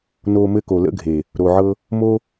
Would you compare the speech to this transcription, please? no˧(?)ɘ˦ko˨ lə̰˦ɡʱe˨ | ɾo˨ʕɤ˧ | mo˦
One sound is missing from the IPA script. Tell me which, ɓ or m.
m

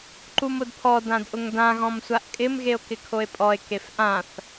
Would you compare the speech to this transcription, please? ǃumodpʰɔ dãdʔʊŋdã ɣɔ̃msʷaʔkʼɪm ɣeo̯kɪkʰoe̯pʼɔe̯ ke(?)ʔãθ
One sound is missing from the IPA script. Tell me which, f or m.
f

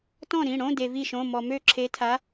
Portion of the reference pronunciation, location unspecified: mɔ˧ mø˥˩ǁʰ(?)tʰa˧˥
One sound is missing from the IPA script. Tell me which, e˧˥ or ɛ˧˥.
e˧˥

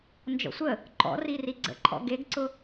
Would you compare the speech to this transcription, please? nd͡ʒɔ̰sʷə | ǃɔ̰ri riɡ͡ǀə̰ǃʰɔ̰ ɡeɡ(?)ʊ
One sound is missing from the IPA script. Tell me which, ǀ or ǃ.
ǀ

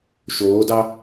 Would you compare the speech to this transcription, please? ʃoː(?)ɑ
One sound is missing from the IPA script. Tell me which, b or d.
d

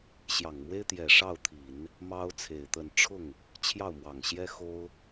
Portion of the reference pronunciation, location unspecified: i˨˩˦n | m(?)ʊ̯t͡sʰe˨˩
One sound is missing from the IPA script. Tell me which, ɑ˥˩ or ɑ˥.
ɑ˥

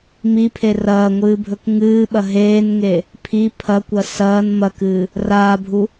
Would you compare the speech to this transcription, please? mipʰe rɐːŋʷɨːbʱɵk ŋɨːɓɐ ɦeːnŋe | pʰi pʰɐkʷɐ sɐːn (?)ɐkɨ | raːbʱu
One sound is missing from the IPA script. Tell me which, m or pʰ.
m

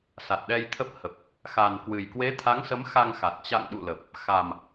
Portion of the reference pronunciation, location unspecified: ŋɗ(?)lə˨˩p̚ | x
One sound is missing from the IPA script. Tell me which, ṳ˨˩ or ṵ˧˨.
ṵ˧˨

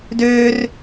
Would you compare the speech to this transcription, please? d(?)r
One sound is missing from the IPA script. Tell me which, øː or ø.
øː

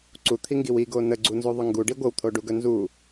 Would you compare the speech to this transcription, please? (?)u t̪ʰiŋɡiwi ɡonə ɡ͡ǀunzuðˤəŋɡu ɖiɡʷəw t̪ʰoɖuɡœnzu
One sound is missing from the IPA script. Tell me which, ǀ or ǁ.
ǀ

